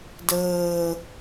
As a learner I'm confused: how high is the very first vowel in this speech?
mid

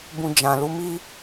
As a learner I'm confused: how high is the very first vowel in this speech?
high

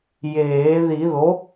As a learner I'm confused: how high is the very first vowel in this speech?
mid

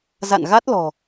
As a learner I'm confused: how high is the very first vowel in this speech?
low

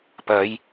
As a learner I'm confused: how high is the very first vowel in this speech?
low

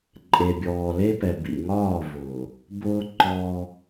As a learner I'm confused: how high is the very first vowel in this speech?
mid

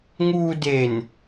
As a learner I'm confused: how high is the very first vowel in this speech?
high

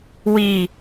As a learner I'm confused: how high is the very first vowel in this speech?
high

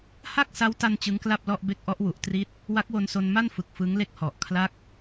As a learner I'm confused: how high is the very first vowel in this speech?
low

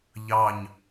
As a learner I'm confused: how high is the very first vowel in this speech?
low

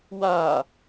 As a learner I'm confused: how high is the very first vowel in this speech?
low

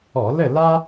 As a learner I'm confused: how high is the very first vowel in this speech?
mid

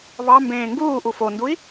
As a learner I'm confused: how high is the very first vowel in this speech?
low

